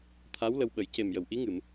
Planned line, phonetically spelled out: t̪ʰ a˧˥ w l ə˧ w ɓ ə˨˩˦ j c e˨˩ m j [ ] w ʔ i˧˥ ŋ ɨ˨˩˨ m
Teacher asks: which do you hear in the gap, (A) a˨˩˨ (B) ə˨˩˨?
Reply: B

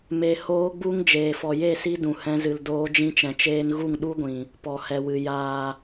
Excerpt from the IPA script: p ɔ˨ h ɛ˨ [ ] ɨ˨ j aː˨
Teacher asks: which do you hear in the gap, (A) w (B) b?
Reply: A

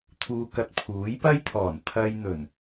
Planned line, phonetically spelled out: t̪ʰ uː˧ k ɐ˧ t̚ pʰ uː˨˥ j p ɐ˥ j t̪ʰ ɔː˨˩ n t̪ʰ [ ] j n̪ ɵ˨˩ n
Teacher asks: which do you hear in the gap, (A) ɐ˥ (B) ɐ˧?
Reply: B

